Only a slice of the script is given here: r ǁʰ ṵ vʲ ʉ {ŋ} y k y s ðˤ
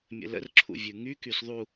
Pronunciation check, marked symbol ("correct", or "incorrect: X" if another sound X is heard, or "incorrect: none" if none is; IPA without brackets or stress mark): correct